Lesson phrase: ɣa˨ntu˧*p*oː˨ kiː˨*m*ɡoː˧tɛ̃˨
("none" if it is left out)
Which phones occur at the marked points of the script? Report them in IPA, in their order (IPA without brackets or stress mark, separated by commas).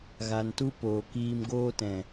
p, m